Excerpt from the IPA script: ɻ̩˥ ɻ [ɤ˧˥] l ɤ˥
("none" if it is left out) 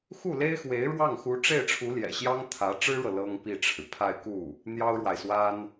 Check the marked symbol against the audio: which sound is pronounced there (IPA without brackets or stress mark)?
ɤ˨